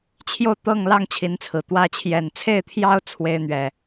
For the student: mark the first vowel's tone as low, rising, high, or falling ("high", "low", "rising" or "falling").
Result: falling